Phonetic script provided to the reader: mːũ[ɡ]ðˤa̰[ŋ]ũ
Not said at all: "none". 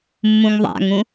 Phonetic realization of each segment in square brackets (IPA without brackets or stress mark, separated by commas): ŋ, ŋ